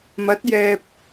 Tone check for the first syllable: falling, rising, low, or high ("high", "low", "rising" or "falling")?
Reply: rising